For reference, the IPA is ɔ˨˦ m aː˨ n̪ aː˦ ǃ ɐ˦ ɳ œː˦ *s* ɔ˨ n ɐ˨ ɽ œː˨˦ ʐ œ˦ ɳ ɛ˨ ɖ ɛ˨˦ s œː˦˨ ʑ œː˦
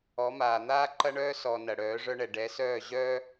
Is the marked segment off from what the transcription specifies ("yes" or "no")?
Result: no